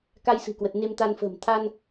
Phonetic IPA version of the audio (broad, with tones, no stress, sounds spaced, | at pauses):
k a˧ j s ɨ̤˨˩ k w ə˨˩ t̚ n e˧ m t̪ a˧ n f ə̤ː˨˩ m t̪ʰ a˧ n